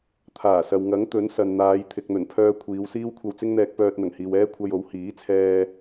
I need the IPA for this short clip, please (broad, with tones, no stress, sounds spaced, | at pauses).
t̪ʰ aː˨˩ s ɐ˨ w ŋ ɐ˨˥ ŋ t̪ ɵ˨˥ n s ɐ˨ n n̪ aː˨˧ j t̪ʰ ɪ˨ k̚ n̪ ɵ˨˩ n pʰ œː˧ kʷʰ iː˨˧ w s iː˥ w kʷʰ ɐ˧ w t͡s ɪ˥ ŋ n̪ ɛː˧ k̚ p œː˧ t̚ n̪ ɐ˨˩ ŋ h iː˨ w ɛː˥ kʷʰ ɐ˧ j o˨˥ w h iː˨˥ t͡sʰ ɛː˧